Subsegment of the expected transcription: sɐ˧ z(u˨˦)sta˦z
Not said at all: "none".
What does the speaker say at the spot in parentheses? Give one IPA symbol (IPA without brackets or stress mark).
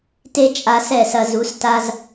u˨˦